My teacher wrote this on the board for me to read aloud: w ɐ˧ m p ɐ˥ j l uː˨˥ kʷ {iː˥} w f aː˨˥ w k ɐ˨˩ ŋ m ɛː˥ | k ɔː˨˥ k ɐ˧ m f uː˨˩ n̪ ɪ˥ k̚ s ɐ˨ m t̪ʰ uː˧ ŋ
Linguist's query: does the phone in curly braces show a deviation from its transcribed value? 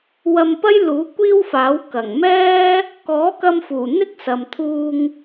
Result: no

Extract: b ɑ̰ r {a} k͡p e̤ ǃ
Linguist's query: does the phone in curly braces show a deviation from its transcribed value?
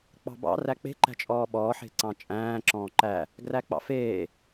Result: yes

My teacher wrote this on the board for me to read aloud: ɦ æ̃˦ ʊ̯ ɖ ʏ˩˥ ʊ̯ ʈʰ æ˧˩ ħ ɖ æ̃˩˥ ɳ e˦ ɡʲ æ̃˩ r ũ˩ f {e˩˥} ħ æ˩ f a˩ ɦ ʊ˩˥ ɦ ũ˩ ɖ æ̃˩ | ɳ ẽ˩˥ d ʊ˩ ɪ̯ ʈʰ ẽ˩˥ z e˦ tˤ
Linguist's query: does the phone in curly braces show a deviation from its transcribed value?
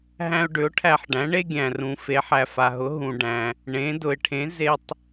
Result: no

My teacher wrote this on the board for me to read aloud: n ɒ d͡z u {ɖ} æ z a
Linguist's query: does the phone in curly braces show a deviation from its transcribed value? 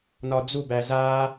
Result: yes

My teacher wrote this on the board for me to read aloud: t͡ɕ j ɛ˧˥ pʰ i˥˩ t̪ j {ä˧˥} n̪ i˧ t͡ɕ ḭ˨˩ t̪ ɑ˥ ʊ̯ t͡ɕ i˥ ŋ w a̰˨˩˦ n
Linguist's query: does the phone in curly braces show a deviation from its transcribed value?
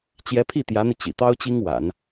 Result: no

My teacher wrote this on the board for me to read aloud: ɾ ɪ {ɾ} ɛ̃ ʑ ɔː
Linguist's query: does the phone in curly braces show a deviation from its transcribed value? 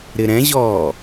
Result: no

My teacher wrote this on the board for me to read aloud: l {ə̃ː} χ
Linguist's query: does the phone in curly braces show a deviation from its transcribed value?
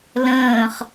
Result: no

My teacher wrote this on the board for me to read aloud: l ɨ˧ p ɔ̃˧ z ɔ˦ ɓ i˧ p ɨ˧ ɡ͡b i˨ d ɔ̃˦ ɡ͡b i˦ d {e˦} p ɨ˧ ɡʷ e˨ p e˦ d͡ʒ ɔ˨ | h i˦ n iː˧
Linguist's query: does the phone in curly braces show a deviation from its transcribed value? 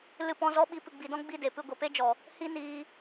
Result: yes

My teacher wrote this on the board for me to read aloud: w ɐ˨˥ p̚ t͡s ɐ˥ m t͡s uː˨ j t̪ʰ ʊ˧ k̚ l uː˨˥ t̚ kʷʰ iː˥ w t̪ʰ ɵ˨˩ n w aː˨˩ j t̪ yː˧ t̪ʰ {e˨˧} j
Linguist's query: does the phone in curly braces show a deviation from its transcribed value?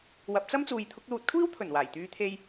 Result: yes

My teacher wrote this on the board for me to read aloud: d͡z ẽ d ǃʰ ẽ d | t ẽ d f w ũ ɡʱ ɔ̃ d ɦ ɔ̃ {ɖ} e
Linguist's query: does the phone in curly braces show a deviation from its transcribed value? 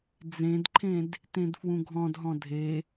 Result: yes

